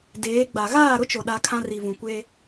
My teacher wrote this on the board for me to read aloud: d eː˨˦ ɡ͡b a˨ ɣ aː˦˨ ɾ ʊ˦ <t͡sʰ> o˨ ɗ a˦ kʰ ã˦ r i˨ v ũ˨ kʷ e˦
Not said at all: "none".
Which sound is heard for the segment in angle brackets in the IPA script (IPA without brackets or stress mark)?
t͡ʃ